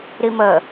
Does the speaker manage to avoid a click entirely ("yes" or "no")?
yes